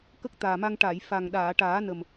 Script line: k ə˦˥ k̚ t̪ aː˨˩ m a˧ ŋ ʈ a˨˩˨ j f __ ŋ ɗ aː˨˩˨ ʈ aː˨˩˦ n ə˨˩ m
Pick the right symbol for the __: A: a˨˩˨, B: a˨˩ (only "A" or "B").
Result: B